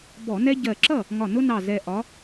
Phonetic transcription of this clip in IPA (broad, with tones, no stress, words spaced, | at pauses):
bɔ˧˩˧ nɛ˦ ɟɜ˧˩ǁʌ˥˩ | ŋɒ˧˩nʊ˦nɑ˧˩ zɛ˧˩ʔɒ˨˦